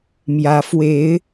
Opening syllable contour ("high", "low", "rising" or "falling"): rising